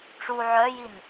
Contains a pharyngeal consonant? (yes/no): yes